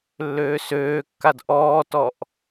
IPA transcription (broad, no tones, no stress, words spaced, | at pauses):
lːøːsøːkːad ʔɔːtɔʔ